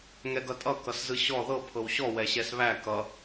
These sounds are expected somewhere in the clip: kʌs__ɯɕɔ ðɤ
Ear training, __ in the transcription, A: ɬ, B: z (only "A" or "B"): B